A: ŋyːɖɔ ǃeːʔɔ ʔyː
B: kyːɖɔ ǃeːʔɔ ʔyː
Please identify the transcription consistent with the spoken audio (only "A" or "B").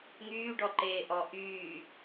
A